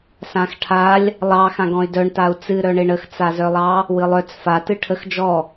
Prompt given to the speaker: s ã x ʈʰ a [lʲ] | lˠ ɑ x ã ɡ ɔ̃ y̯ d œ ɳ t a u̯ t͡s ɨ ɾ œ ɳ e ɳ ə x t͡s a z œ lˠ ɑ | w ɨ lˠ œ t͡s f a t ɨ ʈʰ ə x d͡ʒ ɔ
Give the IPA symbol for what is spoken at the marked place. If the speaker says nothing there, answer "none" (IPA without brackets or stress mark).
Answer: lʲ